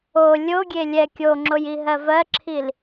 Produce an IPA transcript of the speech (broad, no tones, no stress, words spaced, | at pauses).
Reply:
o lʲoɡʲe lʲɛ kʲoŋ͡ǁojiɦɜ vɜǁʰil